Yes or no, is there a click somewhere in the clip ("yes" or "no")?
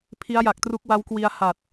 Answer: no